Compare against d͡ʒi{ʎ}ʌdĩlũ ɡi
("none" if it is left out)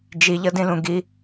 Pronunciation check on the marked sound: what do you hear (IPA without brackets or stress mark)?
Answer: ʎ